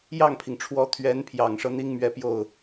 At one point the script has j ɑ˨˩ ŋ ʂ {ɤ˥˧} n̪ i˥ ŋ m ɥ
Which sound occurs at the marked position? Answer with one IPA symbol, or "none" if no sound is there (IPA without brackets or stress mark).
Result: ɤ˦